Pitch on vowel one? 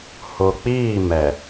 low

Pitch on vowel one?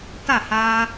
falling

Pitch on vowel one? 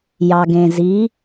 low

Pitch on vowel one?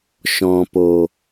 low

